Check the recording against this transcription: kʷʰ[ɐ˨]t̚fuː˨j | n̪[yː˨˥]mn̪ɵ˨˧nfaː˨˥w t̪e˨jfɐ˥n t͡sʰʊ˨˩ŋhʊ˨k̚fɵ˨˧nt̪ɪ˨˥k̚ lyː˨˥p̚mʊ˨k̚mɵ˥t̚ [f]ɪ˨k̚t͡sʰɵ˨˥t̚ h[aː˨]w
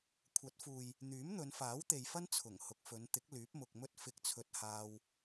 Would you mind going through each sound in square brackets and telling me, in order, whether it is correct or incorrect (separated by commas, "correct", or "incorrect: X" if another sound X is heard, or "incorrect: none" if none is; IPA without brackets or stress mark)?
incorrect: ɐ˨˥, correct, correct, incorrect: aː˧